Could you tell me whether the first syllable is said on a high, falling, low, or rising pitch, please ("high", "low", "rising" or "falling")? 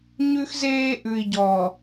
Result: high